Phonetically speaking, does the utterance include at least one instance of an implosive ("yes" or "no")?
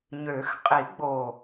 no